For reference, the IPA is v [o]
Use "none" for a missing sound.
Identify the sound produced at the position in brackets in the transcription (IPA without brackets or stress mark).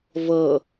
ɤ